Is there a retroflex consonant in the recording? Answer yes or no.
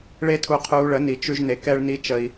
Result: yes